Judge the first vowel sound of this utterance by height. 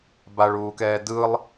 low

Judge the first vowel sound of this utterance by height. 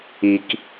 high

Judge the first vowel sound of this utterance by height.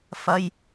low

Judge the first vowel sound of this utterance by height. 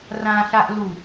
low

